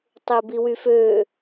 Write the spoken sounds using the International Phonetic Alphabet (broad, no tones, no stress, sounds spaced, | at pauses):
tˤ e b i w y f ø